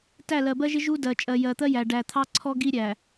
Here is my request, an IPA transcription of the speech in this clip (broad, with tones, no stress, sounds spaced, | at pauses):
t æ˦˨ l ɜ˨ b ɜ˦ ʒ ɪ˦ ʒ u˦ d ɜ˨ t͡ʃʼ ɜ˨ j ɜ˨ t̪ ɜ˦ j æ˨ ɖ æ˨ t̪ʰ ɑ˦ ǀʰ ɔ˦ ɡ i˦ ɾʲ æ˨